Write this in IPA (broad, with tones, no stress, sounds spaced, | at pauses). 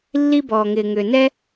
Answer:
lː i˥ b ɔː˩ ŋ ɪː˩ ŋ ʏː˩ n ɛ˥